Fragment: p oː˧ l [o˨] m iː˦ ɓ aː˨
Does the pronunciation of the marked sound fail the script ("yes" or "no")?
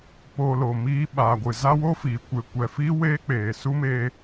no